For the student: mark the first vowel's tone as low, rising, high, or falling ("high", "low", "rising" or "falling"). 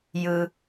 low